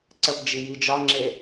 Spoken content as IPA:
ǀ ə p d͡ʒ i j i d͡ʒ ɒ ŋ͡ǁ e

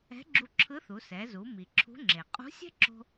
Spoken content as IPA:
ɛ̤˧˥ ɡ͡ǁ u˧ ǁʰ ɯ˧˥ θ u˩˧ s ɛ˩˧ z u˩˧ m i˩ ǁʰ ṳ˧˥ ŋ͡ǁ e˩ qʼ ṳ˧˥ sʲ ɛ̤˥ ǁ o̤˧

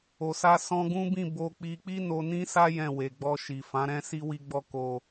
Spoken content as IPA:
o˨ s a˧ s ɔ̃˧ ɡ ũ˦ b ĩ˦˨ b o˧ k͡p i˧ k͡p i˦ n o˧ n ĩ˦ s a˦ j ɛ̃˦˨ w e˨ ɡ͡b ɔ˧ ʃ i˨ f ã˨˦ ɾ ɛ̃˦ s i˦ w i˦ ɡ͡b ɔ˦ k o˧

